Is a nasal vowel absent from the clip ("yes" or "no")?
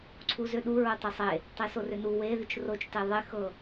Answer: yes